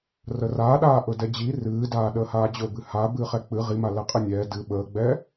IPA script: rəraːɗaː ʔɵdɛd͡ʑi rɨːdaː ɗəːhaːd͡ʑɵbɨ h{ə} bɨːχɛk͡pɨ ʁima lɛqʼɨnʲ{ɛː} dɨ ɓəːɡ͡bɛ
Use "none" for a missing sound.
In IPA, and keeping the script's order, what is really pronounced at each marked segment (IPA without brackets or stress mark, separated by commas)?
a, ɛː